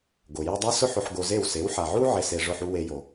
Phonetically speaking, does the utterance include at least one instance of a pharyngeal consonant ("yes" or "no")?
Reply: yes